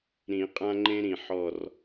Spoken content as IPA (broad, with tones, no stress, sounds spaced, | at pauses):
ɾ ĩ˨˩˦ qʼ ã˦ ŋ͡ǃ ẽ˦ ɾ ĩ˨˩ ħ ɔ˨˩ r